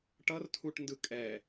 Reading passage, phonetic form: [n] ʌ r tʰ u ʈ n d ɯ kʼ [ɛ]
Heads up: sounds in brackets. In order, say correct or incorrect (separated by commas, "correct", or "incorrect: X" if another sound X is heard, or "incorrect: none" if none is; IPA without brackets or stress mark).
incorrect: ʈ, correct